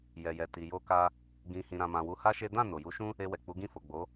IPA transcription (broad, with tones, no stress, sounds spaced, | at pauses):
j ɛ˨ j ɛ˨ t i˨ j o˧ k a˧ | ɡ ĩ˨ h ĩ˨ ɾ ã˨ m ã˨ w u˧ h a˦ ʃ e˦ d ã˦˨ n o˨ j u˨˦ ʃ ũ˦ | e˧ w ɛ˨ k͡p u˨˦ ɡ ĩ˦˨ f o˨ ɡ͡b o˨˦